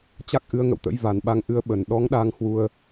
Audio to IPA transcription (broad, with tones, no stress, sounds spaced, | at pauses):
t͡ɕ a˦˥ k̚ ʔ ɨ˨˦ ə̯ ŋ ə̰˧˨ w t̪ ə̰˧˥ j v a˨˩ n ɓ a˨˦ ŋ ʔ ɨ˨˦ ə̯ ɓ ə˨˩ n ɗ ɔ˨˦ ŋ ɗ a˧ ŋ h w u˧ ə̯